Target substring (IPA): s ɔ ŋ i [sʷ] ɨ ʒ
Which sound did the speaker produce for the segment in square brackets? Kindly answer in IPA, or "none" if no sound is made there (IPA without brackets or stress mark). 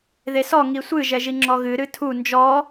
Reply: sʷ